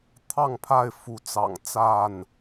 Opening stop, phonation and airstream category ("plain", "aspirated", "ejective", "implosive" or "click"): aspirated